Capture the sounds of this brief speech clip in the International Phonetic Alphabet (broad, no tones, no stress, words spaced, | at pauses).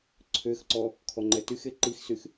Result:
ǀʰøxǀɔ | kʰɔŋ͡ǃɛtyxe ǃixsyx